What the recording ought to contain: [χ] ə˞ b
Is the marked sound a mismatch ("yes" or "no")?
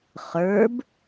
no